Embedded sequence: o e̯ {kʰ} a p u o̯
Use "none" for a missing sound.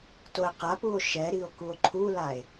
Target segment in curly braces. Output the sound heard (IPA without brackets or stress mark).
q